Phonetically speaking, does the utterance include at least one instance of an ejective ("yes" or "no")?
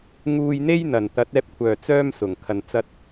no